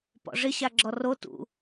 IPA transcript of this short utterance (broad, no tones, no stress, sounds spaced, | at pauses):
p ɔ̰ ʐ ɪ ɕ a ɡ͡ǁ ɔ r o t ṵ